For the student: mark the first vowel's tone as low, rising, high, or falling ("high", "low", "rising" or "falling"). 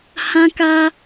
high